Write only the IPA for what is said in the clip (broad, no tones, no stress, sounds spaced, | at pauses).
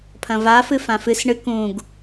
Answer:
pʰ ɐ̃ v a f ɨ f ã f ɨ s ɳ ɨ k ũ ɡ